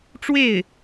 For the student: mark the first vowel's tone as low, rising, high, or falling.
falling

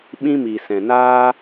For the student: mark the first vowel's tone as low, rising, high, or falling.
high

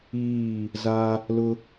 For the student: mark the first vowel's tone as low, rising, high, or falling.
falling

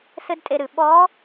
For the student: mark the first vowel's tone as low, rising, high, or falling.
high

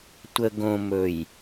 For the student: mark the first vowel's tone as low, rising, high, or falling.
low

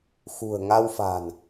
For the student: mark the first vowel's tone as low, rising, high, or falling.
low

